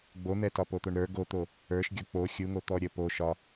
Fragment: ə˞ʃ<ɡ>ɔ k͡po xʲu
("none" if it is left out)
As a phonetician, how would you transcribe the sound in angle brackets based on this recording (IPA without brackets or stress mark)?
ɡʲ